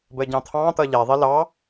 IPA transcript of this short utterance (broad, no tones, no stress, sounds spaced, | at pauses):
b ə ɟ ɑ̃ t̪ʰ ɑ̃ t̪ ʌ ʎ ɛ ðˤ i l ɑ